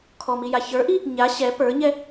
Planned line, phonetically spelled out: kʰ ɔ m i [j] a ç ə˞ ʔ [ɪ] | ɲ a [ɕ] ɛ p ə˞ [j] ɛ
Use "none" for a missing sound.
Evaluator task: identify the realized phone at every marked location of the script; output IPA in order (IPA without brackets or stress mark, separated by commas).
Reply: j, i, ɕ, ɲ